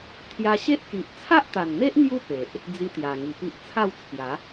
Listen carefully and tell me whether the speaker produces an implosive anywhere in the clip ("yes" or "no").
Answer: no